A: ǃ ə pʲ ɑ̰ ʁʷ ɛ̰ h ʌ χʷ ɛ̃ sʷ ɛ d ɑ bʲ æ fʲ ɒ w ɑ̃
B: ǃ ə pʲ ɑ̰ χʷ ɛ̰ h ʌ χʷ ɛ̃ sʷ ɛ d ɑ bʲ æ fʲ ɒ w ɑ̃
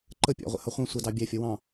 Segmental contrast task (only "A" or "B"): A